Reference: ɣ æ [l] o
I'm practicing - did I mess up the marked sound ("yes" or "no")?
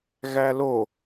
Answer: no